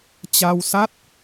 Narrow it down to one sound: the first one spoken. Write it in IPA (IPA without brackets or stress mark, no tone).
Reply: t͡ɕ